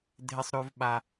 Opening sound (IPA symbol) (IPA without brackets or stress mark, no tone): dʱ